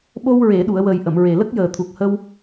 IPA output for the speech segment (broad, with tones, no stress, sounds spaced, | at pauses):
ɓ o˧ w ɹ e˨˩˨ ɗ u˨˩˨ ə̯ w ə˨˩ j ʔ ə˨˩˨ m ɹ e˨˩ l ə˦˥ k̚ j əː˨˩ t̪ʰ u˨˩ k̚ h ə˧ w